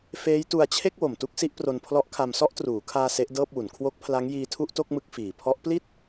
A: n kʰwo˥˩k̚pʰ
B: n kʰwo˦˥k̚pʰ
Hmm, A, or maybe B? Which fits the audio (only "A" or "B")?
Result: B